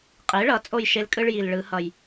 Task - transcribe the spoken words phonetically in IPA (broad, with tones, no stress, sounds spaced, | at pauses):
qʼ e˩˥ ɭ ʌ˩˥ t͡sʼ o˥˩ j ʃ e˦ l kʼ ɯ˦ ɭ j i˨˩ l ɭ ɯ˨˩˦ h ʌ˨˩ j